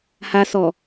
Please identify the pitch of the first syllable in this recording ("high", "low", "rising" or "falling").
low